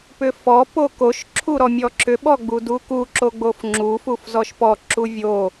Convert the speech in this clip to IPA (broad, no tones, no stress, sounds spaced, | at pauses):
p ʏ f ɔ p o k o ʃ ǁʰ u ɾ ɔ mʲ ɔ ǁ ʏ ɓ ɔ ɡ͡b u d u k u ǁ o ɡ͡b o f ŋ͡ǁ u f u f z ɔ ʃ p ɔ ǁ u vʲ o